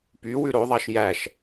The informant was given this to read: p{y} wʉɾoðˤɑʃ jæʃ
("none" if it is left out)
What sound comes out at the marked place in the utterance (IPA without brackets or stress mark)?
y